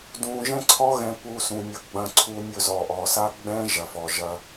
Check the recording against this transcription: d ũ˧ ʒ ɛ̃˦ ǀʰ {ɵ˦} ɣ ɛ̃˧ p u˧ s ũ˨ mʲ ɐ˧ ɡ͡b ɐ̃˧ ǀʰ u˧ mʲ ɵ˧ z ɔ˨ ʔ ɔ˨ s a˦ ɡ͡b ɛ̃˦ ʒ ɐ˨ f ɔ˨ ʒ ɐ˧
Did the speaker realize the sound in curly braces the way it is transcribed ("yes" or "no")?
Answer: no